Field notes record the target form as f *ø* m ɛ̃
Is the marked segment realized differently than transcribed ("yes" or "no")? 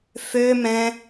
no